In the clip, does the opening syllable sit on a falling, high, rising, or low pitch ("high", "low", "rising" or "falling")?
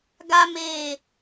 high